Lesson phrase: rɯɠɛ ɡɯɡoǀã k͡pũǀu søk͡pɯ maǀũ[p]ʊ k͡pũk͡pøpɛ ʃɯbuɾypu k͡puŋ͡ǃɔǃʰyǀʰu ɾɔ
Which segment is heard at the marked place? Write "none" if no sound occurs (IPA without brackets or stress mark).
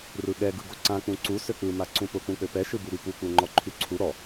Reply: p